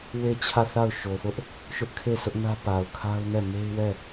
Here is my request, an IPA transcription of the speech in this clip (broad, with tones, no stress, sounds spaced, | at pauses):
w e˦˨ t͡ɕʰ ä˦˨ θ a˦˨ ʊ̯ ʃ o˨ θ ʊ˦ ʔ | ʃ ʊ˦ ʔ kʰ e˦˨ s ʊ˦ ʔ n ä˦ p a˨ ʊ̯ kʰ a˦ ʊ̯ n ɛ˦˨ m e˦ ɪ̯ w ɛ˦˨